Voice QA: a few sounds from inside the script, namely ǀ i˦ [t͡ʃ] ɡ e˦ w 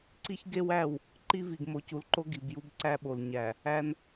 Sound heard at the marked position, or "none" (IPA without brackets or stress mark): ç